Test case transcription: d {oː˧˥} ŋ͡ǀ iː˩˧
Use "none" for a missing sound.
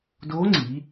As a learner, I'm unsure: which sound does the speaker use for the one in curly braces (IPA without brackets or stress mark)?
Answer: oː˧˥